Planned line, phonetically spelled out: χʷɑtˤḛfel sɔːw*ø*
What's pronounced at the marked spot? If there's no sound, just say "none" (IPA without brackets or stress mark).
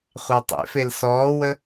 ə